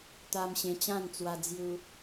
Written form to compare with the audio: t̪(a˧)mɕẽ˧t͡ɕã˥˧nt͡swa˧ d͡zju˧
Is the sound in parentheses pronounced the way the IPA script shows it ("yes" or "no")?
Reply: yes